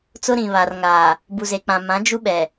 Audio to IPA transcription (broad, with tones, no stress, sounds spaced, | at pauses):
t͡s ʊ˦ ɾ ĩ˨ β a˨ r ŋ aː˨ | b u˨ z e˨ k͡p ã˨ m ã˨˦ d͡ʒ u˦ ɓ ɛ˨